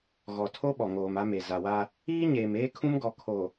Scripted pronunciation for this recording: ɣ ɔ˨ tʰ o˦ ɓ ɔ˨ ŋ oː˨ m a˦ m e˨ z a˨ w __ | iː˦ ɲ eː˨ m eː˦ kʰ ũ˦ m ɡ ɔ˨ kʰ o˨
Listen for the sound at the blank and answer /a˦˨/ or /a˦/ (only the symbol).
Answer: a˦